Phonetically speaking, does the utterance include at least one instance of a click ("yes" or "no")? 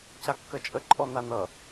yes